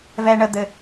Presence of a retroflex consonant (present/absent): present